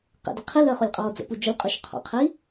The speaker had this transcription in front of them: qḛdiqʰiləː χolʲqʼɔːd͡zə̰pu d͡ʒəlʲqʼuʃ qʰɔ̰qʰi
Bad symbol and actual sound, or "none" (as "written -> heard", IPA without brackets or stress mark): none